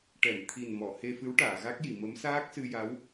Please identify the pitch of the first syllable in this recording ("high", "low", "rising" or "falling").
low